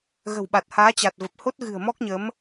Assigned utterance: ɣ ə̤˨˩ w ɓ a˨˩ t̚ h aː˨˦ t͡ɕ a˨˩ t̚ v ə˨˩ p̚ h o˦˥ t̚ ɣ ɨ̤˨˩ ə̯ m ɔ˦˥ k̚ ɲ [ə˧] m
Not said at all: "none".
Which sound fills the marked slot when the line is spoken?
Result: ə˨˦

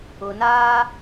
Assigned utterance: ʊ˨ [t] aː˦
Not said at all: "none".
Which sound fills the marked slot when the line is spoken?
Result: n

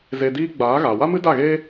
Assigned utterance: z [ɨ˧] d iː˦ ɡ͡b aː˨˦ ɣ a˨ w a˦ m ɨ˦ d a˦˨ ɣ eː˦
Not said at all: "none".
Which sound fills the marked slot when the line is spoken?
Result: e˧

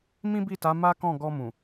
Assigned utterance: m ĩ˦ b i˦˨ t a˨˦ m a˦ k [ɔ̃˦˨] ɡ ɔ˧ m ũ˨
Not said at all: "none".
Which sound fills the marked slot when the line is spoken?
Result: ɔ̃˦˨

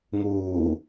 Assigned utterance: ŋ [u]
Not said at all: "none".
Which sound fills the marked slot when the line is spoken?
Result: uː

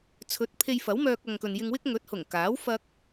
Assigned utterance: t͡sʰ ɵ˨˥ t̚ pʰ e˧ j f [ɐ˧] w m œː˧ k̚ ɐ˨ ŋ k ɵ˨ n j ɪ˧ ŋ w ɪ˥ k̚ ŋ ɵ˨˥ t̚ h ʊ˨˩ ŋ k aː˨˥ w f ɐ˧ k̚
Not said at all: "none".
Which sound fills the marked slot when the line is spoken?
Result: ɐ˨˥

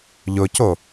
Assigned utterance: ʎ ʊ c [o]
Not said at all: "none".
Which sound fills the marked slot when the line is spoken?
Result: o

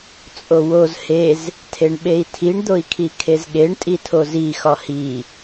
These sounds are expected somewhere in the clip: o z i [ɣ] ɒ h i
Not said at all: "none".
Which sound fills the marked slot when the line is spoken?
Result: x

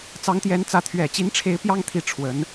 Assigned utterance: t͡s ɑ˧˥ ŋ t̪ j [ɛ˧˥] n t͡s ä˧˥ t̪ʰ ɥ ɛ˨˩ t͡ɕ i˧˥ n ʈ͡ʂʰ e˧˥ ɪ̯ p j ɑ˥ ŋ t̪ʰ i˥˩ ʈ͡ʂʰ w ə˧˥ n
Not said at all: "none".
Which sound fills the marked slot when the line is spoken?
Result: ɛ˧˥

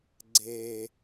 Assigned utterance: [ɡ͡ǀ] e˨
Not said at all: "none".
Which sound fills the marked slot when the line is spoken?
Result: ɡ͡ǀ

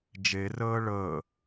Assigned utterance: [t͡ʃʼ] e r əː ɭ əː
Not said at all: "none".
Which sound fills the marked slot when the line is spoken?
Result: d͡ʒ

